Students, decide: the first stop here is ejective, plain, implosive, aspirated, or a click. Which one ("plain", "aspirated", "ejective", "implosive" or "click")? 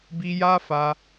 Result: plain